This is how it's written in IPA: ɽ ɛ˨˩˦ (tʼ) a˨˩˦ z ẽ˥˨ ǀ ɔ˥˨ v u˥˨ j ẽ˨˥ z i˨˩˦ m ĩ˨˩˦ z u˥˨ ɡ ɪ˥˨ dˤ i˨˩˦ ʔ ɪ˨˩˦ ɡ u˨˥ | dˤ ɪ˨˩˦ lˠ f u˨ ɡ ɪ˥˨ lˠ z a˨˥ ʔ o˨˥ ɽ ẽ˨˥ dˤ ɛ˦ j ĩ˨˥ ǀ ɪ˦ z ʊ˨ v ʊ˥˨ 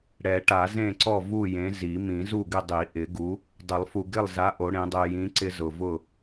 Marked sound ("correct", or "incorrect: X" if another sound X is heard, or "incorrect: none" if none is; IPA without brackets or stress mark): incorrect: ʈ